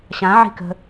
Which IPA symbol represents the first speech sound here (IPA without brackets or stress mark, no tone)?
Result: ɕ